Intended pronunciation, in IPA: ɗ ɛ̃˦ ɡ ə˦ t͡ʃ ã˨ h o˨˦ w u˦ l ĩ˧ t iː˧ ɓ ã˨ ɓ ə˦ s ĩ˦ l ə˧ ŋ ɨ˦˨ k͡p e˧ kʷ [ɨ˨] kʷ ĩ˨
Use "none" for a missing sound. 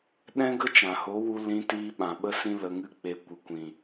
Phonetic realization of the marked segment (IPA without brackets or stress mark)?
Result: ɨ˨